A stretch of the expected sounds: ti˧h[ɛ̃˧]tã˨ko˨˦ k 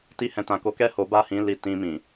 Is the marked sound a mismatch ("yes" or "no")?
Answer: yes